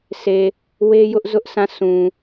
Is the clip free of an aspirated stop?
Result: yes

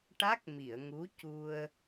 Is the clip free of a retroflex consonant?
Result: no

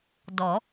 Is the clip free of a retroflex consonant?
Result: yes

